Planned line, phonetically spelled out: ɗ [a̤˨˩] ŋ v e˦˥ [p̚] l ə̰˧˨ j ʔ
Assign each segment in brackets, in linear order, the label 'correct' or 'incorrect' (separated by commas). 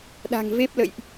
correct, correct